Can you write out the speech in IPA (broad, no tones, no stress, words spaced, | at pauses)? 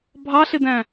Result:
bʱɑɬɪdæ̃